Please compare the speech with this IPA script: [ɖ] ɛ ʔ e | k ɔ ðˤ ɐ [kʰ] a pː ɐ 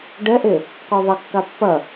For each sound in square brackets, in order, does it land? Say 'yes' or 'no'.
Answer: yes, no

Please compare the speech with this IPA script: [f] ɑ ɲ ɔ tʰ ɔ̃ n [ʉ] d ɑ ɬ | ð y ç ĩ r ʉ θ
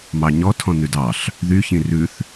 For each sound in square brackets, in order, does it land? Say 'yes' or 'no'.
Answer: no, yes

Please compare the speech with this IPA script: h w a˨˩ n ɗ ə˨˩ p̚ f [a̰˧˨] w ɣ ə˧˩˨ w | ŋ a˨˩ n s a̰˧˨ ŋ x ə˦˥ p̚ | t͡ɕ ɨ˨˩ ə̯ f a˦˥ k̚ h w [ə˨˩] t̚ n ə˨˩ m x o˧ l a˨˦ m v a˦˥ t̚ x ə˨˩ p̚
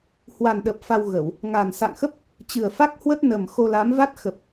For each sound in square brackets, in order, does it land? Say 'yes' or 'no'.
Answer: no, no

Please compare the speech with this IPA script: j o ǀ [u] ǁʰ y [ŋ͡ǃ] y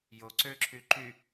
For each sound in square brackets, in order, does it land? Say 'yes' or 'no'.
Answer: no, no

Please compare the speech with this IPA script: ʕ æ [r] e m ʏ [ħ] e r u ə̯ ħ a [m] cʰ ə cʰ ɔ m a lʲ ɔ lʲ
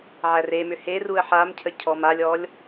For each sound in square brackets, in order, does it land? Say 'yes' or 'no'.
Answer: yes, no, yes

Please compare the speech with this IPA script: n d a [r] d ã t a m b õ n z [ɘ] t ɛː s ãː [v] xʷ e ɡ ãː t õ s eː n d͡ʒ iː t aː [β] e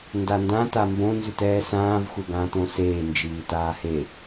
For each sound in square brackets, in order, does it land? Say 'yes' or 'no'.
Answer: no, no, yes, no

